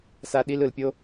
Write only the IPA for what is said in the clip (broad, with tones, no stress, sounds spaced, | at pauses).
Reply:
s a˦ ɗ i˦ l ɯ˨ l pʲ o˦